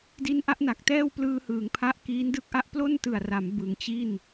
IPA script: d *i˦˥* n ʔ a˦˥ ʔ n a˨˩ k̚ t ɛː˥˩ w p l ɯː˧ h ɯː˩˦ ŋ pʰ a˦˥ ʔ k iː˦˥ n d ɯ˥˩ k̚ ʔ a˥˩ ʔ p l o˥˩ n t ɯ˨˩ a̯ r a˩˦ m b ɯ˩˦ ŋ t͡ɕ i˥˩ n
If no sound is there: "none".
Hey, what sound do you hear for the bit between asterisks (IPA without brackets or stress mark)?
i˦˥